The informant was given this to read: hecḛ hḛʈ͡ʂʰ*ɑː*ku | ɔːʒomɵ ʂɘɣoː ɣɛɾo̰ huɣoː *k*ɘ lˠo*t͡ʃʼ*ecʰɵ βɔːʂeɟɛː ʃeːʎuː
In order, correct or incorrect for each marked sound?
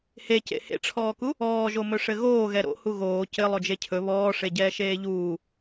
incorrect: ɔː, incorrect: c, incorrect: d͡ʒ

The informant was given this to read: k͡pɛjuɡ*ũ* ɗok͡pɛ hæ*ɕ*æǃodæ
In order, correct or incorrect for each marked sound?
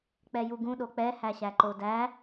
correct, correct

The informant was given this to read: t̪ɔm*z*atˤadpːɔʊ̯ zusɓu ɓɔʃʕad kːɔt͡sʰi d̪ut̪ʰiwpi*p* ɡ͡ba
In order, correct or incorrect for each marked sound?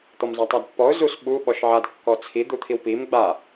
correct, incorrect: m

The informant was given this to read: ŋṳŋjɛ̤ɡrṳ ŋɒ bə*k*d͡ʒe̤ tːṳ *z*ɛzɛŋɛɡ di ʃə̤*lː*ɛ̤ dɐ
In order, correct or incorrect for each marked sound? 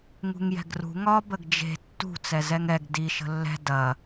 incorrect: ɡ, incorrect: t͡s, correct

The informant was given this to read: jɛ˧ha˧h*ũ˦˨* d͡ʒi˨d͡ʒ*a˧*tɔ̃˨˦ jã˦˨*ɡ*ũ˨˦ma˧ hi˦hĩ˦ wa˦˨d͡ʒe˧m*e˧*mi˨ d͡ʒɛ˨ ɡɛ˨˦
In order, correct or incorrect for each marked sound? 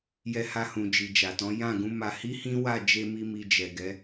incorrect: ũ˨, incorrect: a˨, correct, incorrect: i˧

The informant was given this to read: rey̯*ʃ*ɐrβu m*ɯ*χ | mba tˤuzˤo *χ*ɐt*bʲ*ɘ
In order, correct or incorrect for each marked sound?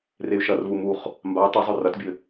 correct, incorrect: u, incorrect: r, correct

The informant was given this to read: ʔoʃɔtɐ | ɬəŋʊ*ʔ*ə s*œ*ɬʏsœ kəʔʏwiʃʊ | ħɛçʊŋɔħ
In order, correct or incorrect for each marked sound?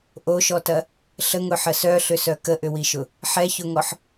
incorrect: ħ, correct

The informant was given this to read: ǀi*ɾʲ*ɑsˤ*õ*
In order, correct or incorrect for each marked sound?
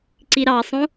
incorrect: ɾ, correct

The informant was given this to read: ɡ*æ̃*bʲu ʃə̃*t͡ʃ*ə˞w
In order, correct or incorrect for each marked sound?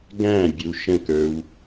correct, incorrect: k

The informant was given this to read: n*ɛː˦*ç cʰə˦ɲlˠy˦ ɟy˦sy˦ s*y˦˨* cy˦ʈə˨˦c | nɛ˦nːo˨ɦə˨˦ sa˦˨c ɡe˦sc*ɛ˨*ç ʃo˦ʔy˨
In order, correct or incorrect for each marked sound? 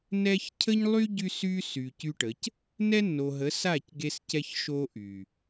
incorrect: ɛ˦, incorrect: y˨, incorrect: ɛ˦

